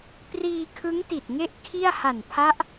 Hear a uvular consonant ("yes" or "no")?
no